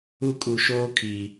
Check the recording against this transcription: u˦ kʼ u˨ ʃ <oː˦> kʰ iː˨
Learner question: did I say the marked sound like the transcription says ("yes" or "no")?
yes